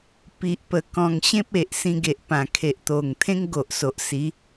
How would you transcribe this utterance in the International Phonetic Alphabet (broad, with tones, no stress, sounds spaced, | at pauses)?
p i˨ ʔ p ə˨˩ k ɔ̃˨˩ ŋ ɕ ẽ˦ p̚ e˨ ʔ s ĩ˧ ɡ e˨ ʔ p ã˨˩ kʰ e˨ ʔ t̪ o˨˩ ŋ t̪ʰ ẽ˦ ŋ ɡ o˨ ʔ s o˨ ʔ s i˨˦